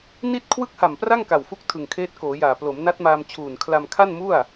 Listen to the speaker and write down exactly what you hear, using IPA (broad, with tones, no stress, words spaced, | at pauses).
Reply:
ni˥˩t̚ kʰwɯ˥˩k̚ha˨˩mpra˥˩ŋ ka˨˩wfu˦˥k̚ tʰɯ˨˩ŋkʰeː˦˥t̚koː˩˦jaː˨˩ plo˩˦mna˦˥t̚maː˧m t͡ɕʰuː˨˩nkʰla˧m kʰa˥˩nmu˥˩a̯